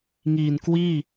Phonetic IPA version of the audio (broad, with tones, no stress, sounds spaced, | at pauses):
ŋ iː˨˩ n k w iː˥˩